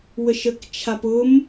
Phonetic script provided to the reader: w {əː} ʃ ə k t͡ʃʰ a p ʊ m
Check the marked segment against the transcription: incorrect: ə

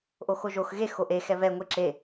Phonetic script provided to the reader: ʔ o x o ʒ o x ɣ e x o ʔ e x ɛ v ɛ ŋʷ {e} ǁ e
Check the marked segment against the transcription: correct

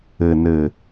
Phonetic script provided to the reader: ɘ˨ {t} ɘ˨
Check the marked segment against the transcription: incorrect: n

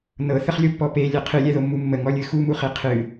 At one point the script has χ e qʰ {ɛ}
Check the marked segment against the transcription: incorrect: ɨ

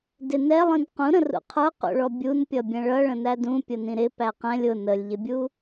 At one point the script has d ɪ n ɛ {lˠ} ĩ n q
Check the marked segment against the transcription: correct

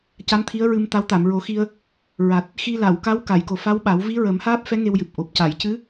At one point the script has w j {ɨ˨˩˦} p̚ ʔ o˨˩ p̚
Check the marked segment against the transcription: incorrect: ɨ˨˩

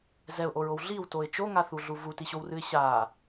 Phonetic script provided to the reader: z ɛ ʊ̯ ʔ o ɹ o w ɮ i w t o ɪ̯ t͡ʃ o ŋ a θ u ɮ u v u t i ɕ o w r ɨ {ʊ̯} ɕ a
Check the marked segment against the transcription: incorrect: ɪ̯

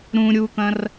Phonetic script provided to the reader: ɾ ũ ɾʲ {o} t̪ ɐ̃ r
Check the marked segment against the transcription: incorrect: u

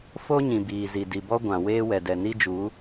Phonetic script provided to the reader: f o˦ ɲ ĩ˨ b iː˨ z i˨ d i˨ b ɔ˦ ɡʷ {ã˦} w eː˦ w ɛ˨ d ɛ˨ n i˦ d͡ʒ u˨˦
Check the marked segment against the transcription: incorrect: ã˨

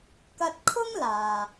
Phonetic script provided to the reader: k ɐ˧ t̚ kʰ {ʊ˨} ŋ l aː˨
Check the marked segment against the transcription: incorrect: ʊ˥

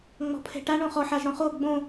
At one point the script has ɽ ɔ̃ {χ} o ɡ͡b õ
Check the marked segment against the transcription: correct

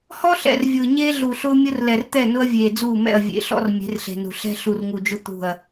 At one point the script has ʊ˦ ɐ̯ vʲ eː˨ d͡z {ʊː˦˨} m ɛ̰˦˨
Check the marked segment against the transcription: incorrect: uː˦˨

